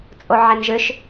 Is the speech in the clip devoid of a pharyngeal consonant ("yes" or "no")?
no